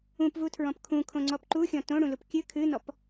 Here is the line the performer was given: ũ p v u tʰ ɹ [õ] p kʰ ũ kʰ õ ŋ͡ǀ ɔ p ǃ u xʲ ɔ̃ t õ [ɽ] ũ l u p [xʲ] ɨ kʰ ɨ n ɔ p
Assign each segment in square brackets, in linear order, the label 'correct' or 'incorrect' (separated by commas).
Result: incorrect, correct, incorrect